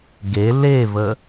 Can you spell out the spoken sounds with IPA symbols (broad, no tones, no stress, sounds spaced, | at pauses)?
ɡ e l e v ə